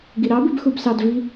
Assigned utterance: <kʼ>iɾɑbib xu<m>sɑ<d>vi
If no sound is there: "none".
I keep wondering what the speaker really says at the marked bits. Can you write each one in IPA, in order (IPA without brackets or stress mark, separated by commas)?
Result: ɡ, b, d